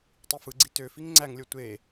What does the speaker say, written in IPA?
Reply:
tˤ i f ɯ ɡ͡ǀ i t ø f i ŋ ŋ͡ǀ æ ŋ lʲ o tʷ e

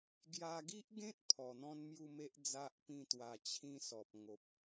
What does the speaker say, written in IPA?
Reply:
ɡ j a˧ ɡ i˦ ʔ ɡ ẽ˦ t̚ pʰ ɔ˨˩ n̪ ɔ̃˦ n m j u˥˧ m e˦ ʔ d͡z a˦ ʔ p ĩ˥˧ t̪ w a˧ t͡ɕʰ ĩ˥˧ s ɔ˨ p̚ ŋ o˨ p̚

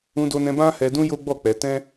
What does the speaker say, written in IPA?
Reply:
ũ˧ d o˧ n ɛ̃˧ b ã˦ h ɛ˧ d ũ˦ j o˦ ɡ͡b ɔ˦˨ k͡p ɛ˧ t ɛ̃˦

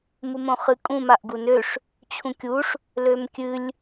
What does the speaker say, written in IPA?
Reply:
m u m õ χ ɨ kʼ ũ m a ʔ ɡ u n ø ʂ | t͡ɕʰ ũ kʲ u ʂ | l ø m kʲ ɨ lʲ

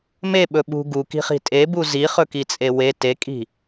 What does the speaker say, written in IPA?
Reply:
m e ɓ ɵ ɓ ṳ ɡ u k i̤ χ i̤ tʼ e b u z i χ ɵ k i t͡sʼ e w e t e kʼ i̤

